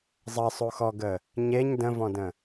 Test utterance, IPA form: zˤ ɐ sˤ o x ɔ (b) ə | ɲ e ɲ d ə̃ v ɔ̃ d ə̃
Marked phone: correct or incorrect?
incorrect